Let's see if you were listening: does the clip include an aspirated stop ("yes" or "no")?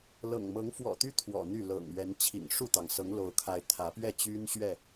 yes